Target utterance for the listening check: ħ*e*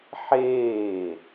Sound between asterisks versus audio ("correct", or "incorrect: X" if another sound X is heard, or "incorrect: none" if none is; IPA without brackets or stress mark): incorrect: eː